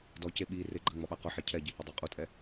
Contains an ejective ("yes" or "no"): yes